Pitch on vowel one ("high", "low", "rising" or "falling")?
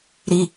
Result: low